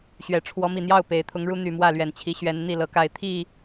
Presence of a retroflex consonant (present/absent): present